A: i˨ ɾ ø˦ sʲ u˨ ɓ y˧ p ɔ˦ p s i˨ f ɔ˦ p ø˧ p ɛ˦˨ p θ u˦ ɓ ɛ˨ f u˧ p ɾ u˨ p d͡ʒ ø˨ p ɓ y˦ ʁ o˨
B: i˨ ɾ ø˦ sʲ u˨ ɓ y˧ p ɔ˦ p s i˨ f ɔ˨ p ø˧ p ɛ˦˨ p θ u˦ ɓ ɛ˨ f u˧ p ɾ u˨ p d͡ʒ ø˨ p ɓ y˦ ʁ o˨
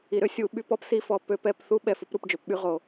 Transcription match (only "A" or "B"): B